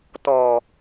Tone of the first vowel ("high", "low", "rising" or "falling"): low